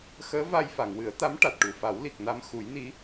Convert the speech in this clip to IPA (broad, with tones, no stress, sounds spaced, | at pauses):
x əː˧˥ v a˧ j f a˨˩˨ ŋ w ɨ˨˩˦ ə̯ t̪ a˧˥ m ʈ a˨˩ t̚ ʈ u˨˩ f a˨˩˦ w l i˨˩ k̚ n a˧ m x u˨˩˦ j n i˧˥